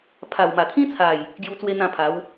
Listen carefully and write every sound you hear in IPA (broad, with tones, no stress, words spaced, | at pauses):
pʰa˨˩wma˨˩t̪ʰĩ˦t͡sʰa˨˩j | ɡju˧t͡swe˧ n̪ã˥˧pʰa˨˦w